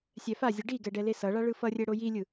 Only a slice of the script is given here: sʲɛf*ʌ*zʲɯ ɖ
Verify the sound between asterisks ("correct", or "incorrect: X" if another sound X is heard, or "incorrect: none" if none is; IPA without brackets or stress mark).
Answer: incorrect: a